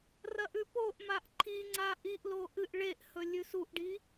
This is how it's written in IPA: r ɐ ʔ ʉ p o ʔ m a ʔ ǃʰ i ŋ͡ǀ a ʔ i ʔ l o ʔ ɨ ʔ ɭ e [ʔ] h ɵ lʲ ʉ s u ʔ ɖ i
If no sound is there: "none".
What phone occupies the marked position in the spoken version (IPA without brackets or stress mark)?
ʔ